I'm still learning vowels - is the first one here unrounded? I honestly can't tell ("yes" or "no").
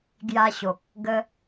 yes